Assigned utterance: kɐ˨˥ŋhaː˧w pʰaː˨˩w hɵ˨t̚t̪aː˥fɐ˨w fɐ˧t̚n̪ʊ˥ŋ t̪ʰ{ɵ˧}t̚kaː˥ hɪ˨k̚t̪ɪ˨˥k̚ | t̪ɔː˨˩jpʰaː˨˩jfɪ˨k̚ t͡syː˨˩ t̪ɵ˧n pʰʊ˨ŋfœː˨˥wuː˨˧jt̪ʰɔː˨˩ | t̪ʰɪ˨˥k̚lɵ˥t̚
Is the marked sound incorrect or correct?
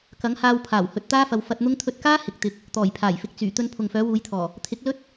correct